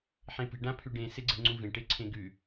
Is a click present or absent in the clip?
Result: present